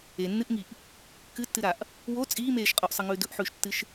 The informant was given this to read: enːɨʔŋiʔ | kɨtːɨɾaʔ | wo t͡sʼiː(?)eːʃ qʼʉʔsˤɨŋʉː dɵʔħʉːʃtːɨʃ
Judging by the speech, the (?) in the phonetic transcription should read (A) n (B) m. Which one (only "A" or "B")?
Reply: B